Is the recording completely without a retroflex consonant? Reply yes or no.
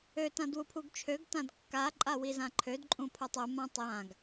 yes